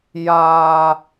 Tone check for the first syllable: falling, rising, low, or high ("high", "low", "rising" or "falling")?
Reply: high